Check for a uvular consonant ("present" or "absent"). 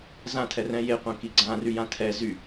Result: present